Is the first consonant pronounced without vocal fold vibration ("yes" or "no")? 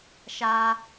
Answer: yes